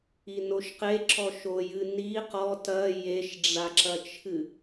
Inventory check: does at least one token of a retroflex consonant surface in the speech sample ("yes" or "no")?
yes